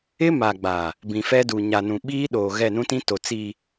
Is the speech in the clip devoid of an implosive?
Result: no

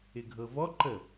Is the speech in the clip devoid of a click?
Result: no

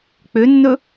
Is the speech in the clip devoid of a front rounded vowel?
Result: no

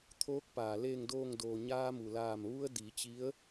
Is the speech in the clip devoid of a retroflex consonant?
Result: yes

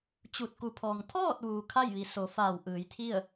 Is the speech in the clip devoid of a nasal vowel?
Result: yes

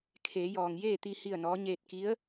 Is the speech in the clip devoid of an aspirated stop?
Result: no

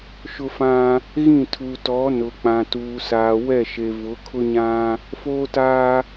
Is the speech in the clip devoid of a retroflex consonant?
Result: yes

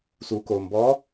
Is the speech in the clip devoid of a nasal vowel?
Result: yes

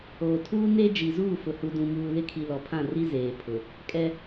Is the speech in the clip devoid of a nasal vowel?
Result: no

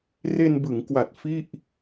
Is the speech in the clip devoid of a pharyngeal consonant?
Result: yes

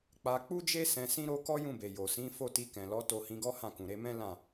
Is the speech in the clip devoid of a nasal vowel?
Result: no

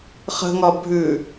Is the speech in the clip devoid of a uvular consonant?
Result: no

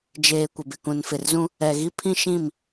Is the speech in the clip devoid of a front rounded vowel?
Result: yes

